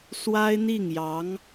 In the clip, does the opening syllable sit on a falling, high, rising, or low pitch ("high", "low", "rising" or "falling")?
high